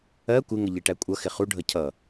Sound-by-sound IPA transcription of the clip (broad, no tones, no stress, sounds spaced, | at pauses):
ɜ kʷ ɪ ŋ ə ʎ i ʈ æ kʷʼ ʌ x ɪ χ u ɖʱ ʌ cʰ ʌ